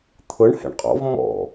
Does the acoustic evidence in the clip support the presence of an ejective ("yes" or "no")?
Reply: yes